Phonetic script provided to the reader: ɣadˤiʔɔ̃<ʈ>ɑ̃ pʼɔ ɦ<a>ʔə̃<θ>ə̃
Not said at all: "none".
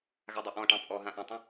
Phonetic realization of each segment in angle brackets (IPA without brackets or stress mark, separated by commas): ʈ, ã, tˤ